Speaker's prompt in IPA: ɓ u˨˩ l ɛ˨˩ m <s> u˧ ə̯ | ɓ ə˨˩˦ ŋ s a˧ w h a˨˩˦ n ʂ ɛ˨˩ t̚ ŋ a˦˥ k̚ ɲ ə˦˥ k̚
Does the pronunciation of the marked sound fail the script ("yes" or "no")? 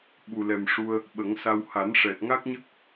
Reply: yes